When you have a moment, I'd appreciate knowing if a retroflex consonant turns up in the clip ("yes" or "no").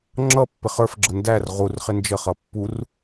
no